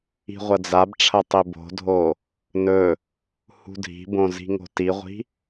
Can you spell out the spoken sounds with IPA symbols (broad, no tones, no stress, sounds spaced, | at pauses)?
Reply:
i̤ ʁʷ ɐ d͡z a b ʈ͡ʂʰ ɐ tˤ i b o̤ dʱ o | n ɵ | h ṳ dʱ i̤ b õ z i̤ ŋ o̤ t i ʁʷ i̤